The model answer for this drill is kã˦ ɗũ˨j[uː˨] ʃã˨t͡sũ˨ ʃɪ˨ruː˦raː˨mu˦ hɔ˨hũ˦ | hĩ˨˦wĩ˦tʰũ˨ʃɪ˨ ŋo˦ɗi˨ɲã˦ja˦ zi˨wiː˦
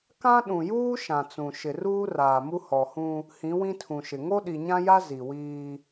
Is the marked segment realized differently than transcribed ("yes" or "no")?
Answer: yes